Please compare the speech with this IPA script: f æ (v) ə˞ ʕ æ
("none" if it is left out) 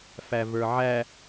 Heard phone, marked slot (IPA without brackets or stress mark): v